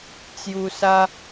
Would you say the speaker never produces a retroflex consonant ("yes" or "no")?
yes